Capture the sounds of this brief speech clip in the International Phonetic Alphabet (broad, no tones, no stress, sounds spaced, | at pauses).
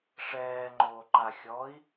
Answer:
ʂ ɛː ŋ͡ǃ oː ǃ a xʲ ɔ i̯